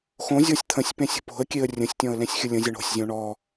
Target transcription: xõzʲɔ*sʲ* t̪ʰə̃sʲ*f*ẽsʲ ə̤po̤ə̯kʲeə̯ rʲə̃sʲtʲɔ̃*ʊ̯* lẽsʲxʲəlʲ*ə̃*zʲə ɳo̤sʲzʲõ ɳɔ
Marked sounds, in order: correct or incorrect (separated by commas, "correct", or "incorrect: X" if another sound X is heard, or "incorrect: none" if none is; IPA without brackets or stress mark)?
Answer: correct, incorrect: p, incorrect: ə̯, correct